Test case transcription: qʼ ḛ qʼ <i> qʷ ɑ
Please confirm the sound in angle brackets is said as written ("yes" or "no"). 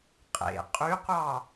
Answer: no